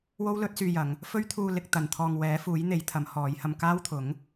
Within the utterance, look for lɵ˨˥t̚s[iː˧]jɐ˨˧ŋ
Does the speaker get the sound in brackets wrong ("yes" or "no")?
yes